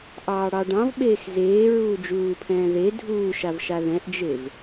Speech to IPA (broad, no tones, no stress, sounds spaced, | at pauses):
ʔ ɑː ɽ ɑ ɖ ɑ̃ v ɓ eː x z eː ɹ uː d͡ʒ uː pʰ ɛ̃ː ð e dʱ uː ʃ a v ʃ a ð ɛ̃ ʔ d͡ʒ e v